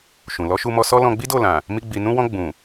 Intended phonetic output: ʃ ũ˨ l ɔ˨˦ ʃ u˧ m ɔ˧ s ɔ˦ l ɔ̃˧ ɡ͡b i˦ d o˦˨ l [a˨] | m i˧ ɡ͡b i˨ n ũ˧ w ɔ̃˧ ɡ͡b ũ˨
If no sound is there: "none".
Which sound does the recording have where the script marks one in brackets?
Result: ã˨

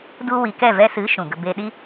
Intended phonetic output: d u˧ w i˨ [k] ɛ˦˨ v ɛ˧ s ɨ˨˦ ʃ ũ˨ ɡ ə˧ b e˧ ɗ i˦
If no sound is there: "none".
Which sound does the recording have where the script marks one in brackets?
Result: k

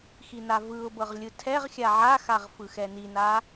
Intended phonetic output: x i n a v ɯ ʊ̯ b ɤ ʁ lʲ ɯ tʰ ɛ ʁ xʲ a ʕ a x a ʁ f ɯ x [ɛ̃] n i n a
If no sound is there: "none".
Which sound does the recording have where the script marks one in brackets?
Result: ɛ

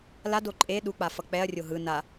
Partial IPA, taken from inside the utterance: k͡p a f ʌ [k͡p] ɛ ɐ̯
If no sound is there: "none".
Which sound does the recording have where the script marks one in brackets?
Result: k͡p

